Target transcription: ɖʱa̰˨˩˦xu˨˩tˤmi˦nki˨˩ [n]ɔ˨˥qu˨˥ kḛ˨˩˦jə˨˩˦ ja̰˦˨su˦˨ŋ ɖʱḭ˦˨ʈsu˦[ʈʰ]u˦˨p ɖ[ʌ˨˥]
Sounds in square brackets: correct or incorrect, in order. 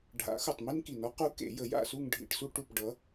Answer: correct, incorrect: ʈ, correct

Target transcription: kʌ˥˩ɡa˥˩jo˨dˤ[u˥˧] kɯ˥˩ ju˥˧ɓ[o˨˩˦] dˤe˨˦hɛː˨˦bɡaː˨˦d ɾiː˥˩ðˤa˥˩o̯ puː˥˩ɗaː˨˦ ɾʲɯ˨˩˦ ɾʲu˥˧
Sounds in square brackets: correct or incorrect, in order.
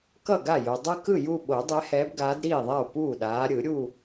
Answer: incorrect: ɯ˥˧, correct

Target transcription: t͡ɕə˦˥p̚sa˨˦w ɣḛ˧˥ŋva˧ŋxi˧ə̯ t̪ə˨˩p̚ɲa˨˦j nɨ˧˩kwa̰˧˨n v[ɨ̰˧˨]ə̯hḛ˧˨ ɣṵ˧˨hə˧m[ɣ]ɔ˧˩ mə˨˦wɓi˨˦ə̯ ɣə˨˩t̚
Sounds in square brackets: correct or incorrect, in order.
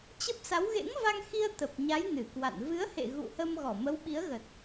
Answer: incorrect: ɨ˨˦, correct

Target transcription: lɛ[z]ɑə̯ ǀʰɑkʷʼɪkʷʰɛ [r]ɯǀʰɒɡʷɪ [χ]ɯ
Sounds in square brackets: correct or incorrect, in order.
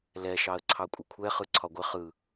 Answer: incorrect: ʃ, incorrect: χ, correct

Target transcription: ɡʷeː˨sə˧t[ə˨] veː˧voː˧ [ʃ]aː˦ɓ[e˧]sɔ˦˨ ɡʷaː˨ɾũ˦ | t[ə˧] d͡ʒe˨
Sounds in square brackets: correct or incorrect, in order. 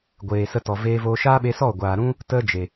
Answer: incorrect: ɔ˨, correct, correct, correct

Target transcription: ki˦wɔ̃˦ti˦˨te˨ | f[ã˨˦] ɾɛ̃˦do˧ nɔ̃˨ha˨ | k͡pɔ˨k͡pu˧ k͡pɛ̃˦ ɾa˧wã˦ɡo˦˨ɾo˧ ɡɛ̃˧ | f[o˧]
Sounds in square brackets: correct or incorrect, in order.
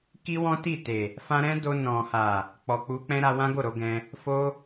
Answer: incorrect: ã˦, incorrect: o˦

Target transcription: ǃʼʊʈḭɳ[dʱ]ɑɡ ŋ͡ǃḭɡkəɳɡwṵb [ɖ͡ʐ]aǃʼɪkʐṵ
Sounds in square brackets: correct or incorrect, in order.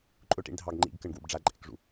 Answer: correct, correct

